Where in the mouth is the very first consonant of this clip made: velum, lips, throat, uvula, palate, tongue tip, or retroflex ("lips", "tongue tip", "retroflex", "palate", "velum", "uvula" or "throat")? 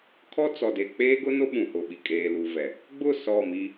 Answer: velum